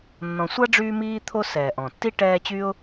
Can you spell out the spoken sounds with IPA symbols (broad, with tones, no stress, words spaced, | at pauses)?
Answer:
nːɔ̃˨sʷa˥ɖ͡ʐyː˦miː˦ t̪ʰo˦sɛː˩ʔɔ̃˩tːi˥ ʈɛː˦t͡ɕy˥ʊ̯